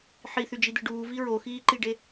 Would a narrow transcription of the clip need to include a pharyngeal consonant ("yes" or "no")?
yes